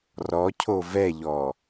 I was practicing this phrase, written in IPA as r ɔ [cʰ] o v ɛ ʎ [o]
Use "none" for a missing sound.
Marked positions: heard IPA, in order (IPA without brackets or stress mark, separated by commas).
cʰ, ɔ